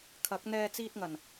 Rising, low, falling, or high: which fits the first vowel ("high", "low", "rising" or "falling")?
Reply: rising